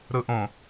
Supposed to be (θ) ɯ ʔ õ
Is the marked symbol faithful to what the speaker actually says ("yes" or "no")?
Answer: no